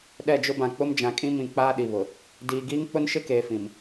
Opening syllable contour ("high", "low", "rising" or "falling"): falling